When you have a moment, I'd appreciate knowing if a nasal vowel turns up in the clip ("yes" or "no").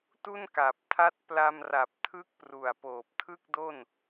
no